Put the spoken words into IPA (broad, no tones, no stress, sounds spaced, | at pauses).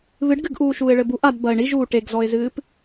β ɨ ɖ ɡ ɨ ɡ ʔ uː ʃ uː ɪ̯ ɭ ɘ b u ʔ a d b ɐ ɪ̯ ɳ i ʒ uː ʈ e ɡ z ɔ ɪ̯ z ɨː p